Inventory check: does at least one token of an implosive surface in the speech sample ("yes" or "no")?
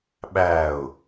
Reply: yes